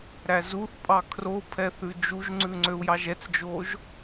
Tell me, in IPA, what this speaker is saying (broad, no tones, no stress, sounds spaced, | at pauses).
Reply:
ɾ æ z u θ pʼ ɑ kʰ r o pʰ ɛ θ ʉ d͡ʒ u ʒ ŋ͡ǀ ʉ ŋ͡ǀ ø u̯ j ɑ ʒ ɛ t͡s d͡ʒ o ʒ